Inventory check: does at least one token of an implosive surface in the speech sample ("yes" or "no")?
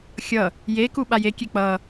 yes